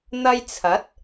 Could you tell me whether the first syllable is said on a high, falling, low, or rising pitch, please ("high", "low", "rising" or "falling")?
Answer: high